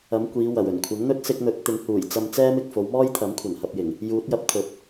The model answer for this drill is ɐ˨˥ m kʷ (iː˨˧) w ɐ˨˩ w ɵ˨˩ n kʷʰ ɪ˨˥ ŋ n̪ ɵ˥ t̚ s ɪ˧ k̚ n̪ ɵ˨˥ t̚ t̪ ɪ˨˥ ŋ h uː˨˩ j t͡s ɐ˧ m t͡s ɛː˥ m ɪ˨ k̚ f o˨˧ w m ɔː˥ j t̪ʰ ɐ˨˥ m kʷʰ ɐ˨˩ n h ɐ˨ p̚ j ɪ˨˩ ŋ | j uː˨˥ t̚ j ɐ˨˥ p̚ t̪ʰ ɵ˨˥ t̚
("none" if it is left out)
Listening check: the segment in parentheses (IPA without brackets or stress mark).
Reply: iː˨˧